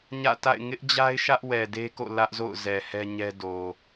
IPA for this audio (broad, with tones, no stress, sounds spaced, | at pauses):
ɲ ä̰˦˨ t a̰˦˨ ɪ̯ ŋ ɪ˦ ʔ d͡ʑ a˦ ɪ̯ ʃ ä˦ ʔ w ɛ˨ d e˦ k o̰˦˨ l ä˦ ʔ z o̰˦˨ ʊ̯ z ɛ˨ h ɛ˦ ɲ ɛ˦ d o˨